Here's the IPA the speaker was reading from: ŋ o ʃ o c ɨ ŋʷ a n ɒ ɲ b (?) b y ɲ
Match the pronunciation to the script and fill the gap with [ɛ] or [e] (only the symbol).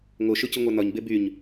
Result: e